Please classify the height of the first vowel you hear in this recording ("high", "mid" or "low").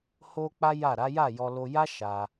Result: mid